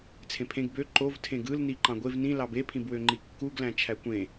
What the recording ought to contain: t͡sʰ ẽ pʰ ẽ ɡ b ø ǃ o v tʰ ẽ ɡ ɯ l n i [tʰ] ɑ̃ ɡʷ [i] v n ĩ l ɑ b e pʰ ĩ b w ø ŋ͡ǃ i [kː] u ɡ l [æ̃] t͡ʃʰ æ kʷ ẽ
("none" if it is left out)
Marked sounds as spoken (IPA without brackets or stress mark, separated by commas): ǃ, e, kː, æ̃